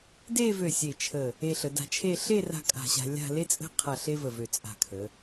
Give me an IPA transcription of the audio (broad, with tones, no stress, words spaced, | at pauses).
de˥˧vø˧˩ sʲe˧˩t͡ʃʰə˧˩ | e˧ɬə˩˧da̤˧t͡ʃʰe˥˧ ɬe˥˧ra̤˧ kʼa̤˧˩ɕa̤˧lʲa̤˥˧ le˥t͡sʼə̤˥˧qʰa˧˩ ɬe˥və˧˩vø˧˩ t͡sʼa̤˧˩kʰə˩˧